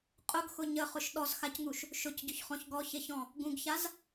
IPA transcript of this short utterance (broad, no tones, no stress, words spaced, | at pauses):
qʼʊɡxʊ ɲəχʊʃ ɗɔzxacŋuʃ | ʃʊcɟʊçχɔ̃ç ɡɔçeçɔ̃ | ɡũɡçaz